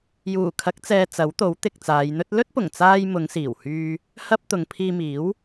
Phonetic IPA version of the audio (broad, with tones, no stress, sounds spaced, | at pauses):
j uː˨˩ kʰ ɐ˨˥ k̚ t͡s ɛː˨ t͡s ɐ˨˥ w t̪ o˨˥ w t̪ ɪ˨ k̚ t͡s aː˨˧ j n̪ ɵ˥ t̚ l ɵ˥ t̚ p ʊ˨˩ ŋ t͡s aː˧ j m ʊ˨˧ ŋ s iː˨˩ w h yː˧ | h ɐ˥ p̚ t̪ ʊ˨˧ ŋ pʰ iː˧ m iː˨˥ w